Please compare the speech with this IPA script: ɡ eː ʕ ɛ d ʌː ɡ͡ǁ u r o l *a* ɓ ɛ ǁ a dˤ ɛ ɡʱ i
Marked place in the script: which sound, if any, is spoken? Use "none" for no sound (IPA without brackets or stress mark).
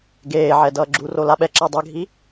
a